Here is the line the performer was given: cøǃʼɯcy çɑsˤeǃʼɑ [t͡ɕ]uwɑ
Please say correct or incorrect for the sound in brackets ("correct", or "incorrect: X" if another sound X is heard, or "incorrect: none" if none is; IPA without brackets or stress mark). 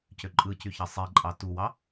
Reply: incorrect: t